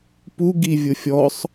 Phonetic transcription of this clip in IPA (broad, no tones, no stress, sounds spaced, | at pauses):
p u ɡ i vʲ ʊ fʲ ɔ sˤ